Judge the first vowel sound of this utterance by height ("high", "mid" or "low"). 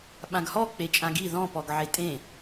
low